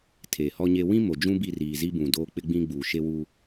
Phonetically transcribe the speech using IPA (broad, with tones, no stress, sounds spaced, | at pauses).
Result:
tʰ eː˨ h ɔ˦ ɲ e˦ w ĩ˦ m o˨ d͡ʒ ũ˦ b i˦˨ r iː˨ z i˦ b ũ˨ d oː˦ k͡p ɪ˦ ɡ͡b ĩ˦ ɡ͡b uː˨ ʃ e˦ w u˦